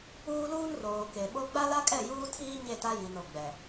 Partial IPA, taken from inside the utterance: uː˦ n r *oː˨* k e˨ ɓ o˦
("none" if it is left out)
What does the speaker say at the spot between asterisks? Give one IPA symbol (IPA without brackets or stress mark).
oː˨